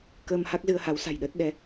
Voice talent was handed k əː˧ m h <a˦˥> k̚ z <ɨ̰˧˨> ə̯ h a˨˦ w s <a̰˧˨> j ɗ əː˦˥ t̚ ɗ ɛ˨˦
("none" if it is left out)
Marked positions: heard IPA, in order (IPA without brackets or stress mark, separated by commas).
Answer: a˦˥, ɨ˧, a̤˨˩